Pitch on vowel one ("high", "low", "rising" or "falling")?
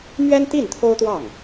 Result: high